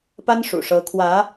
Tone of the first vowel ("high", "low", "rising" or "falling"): high